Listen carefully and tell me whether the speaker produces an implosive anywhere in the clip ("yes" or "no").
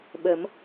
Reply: yes